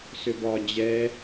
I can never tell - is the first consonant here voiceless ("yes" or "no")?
yes